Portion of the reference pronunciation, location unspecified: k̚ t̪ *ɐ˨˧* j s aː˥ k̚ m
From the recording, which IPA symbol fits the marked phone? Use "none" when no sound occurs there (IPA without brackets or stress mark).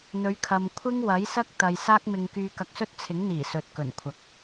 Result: ɐ˨